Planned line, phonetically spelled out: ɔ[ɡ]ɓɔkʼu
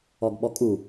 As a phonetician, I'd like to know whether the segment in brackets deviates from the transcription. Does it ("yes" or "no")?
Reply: no